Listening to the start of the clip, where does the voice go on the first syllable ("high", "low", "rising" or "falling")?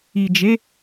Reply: low